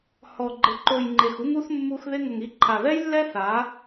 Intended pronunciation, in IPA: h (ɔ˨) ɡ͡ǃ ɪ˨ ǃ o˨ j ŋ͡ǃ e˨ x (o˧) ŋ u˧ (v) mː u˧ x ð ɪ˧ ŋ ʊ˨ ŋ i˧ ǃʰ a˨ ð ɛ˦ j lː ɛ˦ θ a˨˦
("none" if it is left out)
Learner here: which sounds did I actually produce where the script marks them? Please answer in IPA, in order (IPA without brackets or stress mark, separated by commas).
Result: ɔ˨, u˧, θ